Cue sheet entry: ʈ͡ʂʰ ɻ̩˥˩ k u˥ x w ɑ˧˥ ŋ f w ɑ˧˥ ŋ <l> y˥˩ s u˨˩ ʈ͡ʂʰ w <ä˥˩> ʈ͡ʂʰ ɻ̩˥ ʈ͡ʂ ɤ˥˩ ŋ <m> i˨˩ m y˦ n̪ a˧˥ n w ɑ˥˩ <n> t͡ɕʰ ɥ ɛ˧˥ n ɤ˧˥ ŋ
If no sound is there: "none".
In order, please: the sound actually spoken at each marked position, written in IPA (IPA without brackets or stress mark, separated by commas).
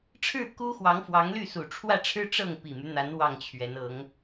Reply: l, ä˥˩, p, ŋ